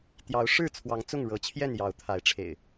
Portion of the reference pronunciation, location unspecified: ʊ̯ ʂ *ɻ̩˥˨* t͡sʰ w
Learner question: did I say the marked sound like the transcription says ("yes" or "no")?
yes